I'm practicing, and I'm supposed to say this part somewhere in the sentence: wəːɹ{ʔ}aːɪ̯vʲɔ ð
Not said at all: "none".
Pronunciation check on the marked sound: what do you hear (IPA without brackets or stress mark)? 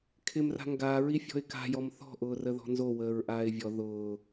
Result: ʔ